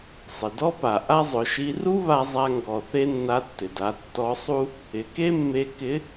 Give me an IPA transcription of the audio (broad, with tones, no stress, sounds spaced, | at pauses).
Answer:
sˤ ɪ˩ d ɔ˥ p a˩ ʔ a˥ zˤ ʊ˩˧ ʃ i˧˥ r u˥ β a˧ zˤ a˧ ŋ ɡ ɔ˩ θ e˥ nː a˧˥ tː ɪ˩ d a˩˧ tː ɔ˧˥ sˤ u˥ | ɪ˩˧ k e˥ mː e˧ k ɪ˧˥